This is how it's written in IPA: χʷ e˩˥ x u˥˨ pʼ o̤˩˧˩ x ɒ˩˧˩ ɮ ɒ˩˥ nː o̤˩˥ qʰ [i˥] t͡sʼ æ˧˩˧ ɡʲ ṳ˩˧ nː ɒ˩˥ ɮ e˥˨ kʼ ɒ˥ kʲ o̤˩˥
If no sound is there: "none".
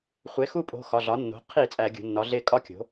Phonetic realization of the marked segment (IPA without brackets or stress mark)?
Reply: i˧˩˧